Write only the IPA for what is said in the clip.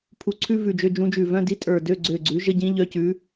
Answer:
pʰ u˧˩ ǀʰ ʉ˥ v ʉ˧˩ d͡ʒ ø˧˥˧ d͡ʒ ũ˧˥ d͡ʒ ʉ˧˩ v œ̃˧˥˧ d i˧˥˧ tʼ ə˞˧˩ d ø˧˥˧ ɡ͡ǀ ø˧˩ ɡ͡ǀ ʉ˩˥ ʒ ə˧˥˧ ɟ ĩ˧˥ ʎ œ˧˥ c ʉ˩˥

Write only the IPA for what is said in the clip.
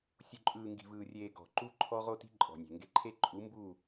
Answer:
sʲ u˨ ǃʼ ɯː˨ ŋ ɡ i̤˨ v ɯː˨ rʲ eː˨ ɡ ɔ̤˨ ǃ u˦ ǃʰ ɔ˦ ʁ o˦ t i̤˦ ǃʼ ɔ̤˨ nʲ e̤˨ ŋ ɡ e˦ ǃʰ e˦ ǃʼ u˨˦ m b u˦˨

